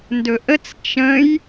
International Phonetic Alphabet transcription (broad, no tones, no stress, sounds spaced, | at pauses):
n d ɵ ʔ ə t͡s t͡ʃ ə̃ j